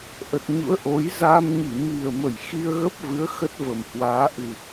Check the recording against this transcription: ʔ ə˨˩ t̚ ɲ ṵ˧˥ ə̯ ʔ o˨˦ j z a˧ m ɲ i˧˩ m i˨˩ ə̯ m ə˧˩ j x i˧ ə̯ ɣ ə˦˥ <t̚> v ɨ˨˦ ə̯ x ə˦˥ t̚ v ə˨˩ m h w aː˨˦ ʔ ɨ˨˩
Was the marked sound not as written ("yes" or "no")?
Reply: yes